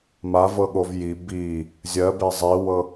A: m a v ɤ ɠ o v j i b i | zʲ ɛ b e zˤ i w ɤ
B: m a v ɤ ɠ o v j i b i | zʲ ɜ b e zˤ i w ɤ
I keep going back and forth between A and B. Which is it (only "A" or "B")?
B